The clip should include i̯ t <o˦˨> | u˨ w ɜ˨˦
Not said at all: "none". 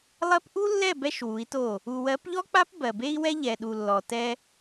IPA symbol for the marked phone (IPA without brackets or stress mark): o˦˨